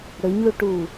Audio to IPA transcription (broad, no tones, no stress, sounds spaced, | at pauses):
ɽ ɵ ɲ l u ʈ uː